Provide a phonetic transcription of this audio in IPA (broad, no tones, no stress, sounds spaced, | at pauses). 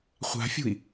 χʷ a̤ fʲ ṳ i̯